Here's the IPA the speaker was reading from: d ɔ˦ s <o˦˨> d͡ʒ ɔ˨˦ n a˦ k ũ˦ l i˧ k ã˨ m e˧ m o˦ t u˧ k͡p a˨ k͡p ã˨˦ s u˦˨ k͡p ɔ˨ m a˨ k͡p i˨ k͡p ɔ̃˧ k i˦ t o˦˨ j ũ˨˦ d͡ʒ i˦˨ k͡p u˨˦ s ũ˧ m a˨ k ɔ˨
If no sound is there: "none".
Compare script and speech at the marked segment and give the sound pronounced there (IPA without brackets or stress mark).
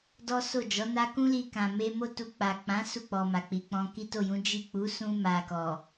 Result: o˦˨